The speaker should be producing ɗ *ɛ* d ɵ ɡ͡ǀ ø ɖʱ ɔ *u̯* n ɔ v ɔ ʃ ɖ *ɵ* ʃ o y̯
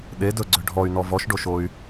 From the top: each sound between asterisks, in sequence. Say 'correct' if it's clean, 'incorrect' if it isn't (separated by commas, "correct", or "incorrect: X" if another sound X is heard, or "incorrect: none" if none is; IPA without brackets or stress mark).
incorrect: e, incorrect: y̯, incorrect: o